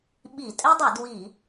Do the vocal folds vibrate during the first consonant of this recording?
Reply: yes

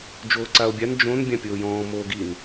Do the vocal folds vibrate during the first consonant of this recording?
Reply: yes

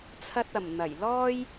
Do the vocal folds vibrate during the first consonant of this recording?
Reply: no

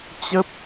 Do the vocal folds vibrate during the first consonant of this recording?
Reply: no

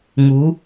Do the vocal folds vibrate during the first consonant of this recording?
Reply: yes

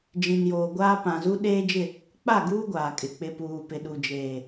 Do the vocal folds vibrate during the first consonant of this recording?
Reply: yes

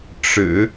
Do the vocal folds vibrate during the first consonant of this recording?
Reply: no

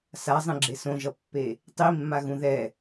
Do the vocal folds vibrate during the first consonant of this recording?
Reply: no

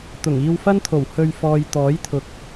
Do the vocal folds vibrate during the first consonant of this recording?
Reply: no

